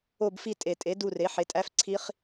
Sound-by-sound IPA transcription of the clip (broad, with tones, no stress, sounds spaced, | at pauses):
o˦˨ b f i˦˨ tʼ e˨˩ tʼ e˩˥ d u˦˨ r e˩˥ ħ e˩˥ tʼ æ˦˥ f ǀʰ i˦˥ χ